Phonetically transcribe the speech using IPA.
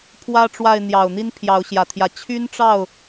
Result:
pʰ w ä˦ ʈ͡ʂ w a˥˨ ɪ̯ n̪ j ɑ˨˩ ʊ̯ n̪ i˦ n pʰ j ɑ˨˦ ʊ̯ ɕ j ä˨˩ t̪ʰ j ä˨˦ t͡ɕʰ y˦ n ʈ͡ʂ ɑ˥˨ ʊ̯

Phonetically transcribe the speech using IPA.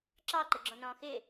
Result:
ǁ ɑ ǃ ə ɡ͡ǁ ɔ̃ n ɔ̃ː x ɪː

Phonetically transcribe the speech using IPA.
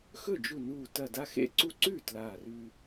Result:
x ɵ˥˩ d͡ʒ u˧˩ n uː˧˩ t ɐ˧˩ d a˦ x ḛ˥˩ ǀ u˦ ǀ ʉː˥˩ t l aː˧˩ r ʉː˦

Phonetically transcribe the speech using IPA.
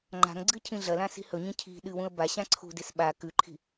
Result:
ŋ͡ǃ a̤ ŋ ɡ͡ǀ ɨ cʰ ĩ ɮ ɐ l ã s i̤ h ɵ ɲ ĩ cʰ i̤ ɗ ɨ w ũ ə̯ b a ɕ ã ǀʰ ṳ d e s ɓ a k ʉ ǃʰ i̤

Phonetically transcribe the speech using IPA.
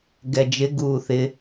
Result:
ɡ ɛ d͡ʒ ɪ ɡ uː θ ɪ

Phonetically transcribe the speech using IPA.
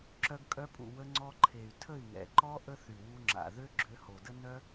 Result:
ǁ œ˧ ɡ kʼ œ˧ pʼ ṵ˨ w ə˧ ŋ͡ǀ ɔ˧ ǃʰ e˨ y̯ tʰ ə˦˨ i̯ ŋ ɛ̰˨ ǃ ɔ˦ ʔ ə˦ θ y˨ w u˧ ŋ͡ǁ a̰˨ ð ø˦ ɡ͡ǁ ø˧ h o˨ d ə˦ n œ˦

